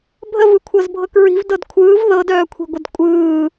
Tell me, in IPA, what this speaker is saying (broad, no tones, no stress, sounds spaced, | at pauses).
bʱ ə v ɯ kʷʰ ɤ z bʱ ɤ k ɹ i̤ v d ɤ d kʷʰ ɯː v ð ɤ d œː kʷʰ i̤ ɡʷ ə d kʷʼ ɯː